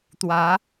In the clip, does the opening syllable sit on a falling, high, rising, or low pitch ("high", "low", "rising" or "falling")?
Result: rising